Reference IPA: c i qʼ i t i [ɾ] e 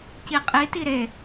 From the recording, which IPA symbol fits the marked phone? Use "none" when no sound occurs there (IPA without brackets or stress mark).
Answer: ɾ